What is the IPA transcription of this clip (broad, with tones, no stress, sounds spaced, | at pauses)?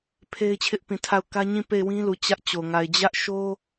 pʰ e˦ ɪ̯ t͡ɕʰ ɪ˦ ʔ p ĩ˨ tʰ a˦˨ ʊ̯ k ä˦ ɲ ĩ˦˨ p e˦˨ ɪ̯ w ĩ˦ l u˨ t͡ɕ ä˦ ʔ t͡ɕ o˨ ŋ a˨ ɪ̯ d͡ʑ ä˦ ʔ ʃ o˦